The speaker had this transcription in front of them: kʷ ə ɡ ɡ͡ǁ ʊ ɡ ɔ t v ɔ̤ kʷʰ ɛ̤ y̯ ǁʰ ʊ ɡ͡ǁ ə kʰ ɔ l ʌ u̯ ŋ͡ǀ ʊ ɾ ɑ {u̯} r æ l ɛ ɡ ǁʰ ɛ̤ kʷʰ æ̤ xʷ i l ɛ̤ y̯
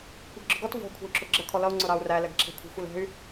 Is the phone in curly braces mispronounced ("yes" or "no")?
no